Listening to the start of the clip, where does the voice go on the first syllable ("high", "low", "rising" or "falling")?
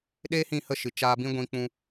high